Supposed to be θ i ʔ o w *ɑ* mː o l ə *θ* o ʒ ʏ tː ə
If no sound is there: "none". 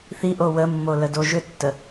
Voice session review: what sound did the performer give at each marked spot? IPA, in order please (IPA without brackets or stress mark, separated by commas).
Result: ə, d